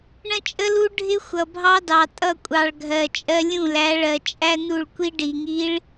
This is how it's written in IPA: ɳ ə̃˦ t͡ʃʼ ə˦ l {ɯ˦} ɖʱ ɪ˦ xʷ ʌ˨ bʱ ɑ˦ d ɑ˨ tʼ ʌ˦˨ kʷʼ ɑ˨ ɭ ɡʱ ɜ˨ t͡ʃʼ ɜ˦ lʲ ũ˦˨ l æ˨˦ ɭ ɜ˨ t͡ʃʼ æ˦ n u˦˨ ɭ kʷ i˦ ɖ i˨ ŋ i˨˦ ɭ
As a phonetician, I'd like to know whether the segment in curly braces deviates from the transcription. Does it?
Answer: yes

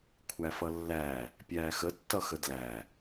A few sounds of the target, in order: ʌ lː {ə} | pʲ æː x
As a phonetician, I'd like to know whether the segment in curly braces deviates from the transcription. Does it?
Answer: yes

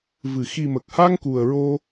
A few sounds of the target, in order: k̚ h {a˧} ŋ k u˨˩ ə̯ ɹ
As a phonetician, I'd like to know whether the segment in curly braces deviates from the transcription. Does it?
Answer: no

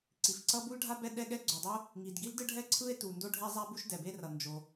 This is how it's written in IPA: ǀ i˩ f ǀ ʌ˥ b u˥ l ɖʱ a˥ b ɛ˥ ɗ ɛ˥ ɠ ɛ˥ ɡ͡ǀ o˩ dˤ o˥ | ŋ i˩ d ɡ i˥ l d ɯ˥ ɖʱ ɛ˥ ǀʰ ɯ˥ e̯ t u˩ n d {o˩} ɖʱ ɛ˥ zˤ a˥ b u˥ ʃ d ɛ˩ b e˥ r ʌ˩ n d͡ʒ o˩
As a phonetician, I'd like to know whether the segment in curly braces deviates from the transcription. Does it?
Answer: yes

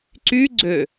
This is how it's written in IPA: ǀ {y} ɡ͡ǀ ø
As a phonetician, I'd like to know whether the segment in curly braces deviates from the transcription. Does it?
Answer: no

